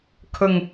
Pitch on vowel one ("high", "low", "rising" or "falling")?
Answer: low